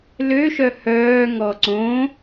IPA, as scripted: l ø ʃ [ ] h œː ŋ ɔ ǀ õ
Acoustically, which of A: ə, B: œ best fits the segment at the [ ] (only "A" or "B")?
B